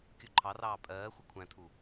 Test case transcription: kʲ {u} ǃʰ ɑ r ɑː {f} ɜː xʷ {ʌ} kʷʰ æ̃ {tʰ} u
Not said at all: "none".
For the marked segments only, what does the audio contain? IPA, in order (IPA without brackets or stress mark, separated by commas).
u, pʼ, ʌ, tʰ